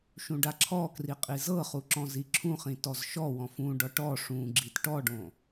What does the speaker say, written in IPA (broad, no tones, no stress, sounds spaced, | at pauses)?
ʃ ũ ɖ a ǁʰ ɔ k r i qʼ i z ɤ χ u ǁ ɔ̃ z i ǁʰ ũ χ ĩ t ɔ z ʃ ɔ w ɔ̃ f ũ ɖ ɔ ʈ ɔ ʂ ũ ɡ͡ǁ i t ʈ ɔ ɖ õ